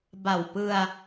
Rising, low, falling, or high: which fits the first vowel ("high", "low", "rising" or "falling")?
low